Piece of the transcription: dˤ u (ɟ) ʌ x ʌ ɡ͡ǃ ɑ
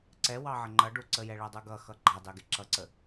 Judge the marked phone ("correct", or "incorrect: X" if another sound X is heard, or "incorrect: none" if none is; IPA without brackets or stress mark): incorrect: ɡ